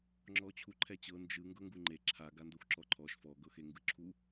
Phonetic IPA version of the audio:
ŋ͡ǁ ɔ t͡ɕʰ u ǃʰ ɛ t͡ɕ ɤ n d͡ʒ ɯ ŋ ɡ ɤ ŋ ɡ u ŋ͡ǃ e ǁʰ a ɡ a n d ɤ xʷ ǁ ɔ ǃʰ ɔ ʃ f ɔ ɡ ɤ x e ŋ ɡ ɯ ǁʰ u

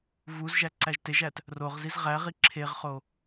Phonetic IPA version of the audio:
v u z ʒ æ ǀ æ ʒ t e ʒ æ t | r o ʁ z i z ʁ æ ʁ i ǁʰ e ʁ χ o

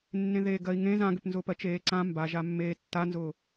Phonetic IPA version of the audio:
nː ẽ ð eː ɡ ɜ i̯ ŋ ẽ z ã ɡ ʏ p n z ʊː p ɜ t͡ʃ eː ǀ ã m b a ʒ a mː eː tː a n z ʊː

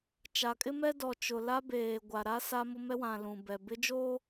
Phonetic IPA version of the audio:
t͡ʃ a˨ kʼ ɪ˦ m ɛ˦ d ɔ˨ t͡ʃ ʊ˨ l a˦ b eː˨ ɡʷ a˨ ɾ a˦ s a˦ m ʊ˦ m ɛ˦ w ã˨ l ũ˨ b ɛ˨ b ɪ˦ d͡ʒ o˦

